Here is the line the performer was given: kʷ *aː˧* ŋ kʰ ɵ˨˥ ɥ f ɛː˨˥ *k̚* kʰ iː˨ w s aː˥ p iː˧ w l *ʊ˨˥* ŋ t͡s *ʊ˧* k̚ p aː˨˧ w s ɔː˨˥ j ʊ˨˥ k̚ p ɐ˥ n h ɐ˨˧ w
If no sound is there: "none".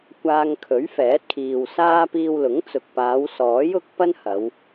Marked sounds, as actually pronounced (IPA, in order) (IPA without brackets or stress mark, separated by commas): aː˧, t̚, ʊ˨˥, ʊ˨